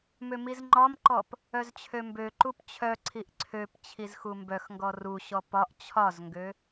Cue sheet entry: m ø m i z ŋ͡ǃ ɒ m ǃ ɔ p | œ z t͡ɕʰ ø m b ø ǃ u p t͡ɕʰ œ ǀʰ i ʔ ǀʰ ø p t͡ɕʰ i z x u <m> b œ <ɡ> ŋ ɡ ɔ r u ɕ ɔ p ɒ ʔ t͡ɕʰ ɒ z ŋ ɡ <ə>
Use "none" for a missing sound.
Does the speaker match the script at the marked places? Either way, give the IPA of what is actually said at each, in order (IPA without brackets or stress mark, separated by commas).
m, x, ø